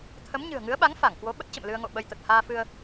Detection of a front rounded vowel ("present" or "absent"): absent